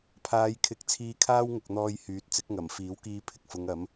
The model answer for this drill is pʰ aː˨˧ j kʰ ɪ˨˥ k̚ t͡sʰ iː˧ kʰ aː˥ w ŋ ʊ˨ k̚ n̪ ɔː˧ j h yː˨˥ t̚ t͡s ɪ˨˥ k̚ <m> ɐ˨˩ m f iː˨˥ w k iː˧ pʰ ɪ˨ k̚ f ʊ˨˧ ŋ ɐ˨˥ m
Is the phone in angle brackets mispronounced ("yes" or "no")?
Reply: yes